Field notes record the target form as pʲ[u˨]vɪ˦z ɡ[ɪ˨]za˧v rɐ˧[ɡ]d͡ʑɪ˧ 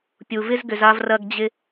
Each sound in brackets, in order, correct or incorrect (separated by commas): correct, incorrect, correct